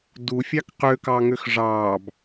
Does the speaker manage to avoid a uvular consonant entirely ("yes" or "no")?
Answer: no